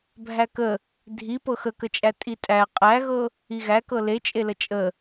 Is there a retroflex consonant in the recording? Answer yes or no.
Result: no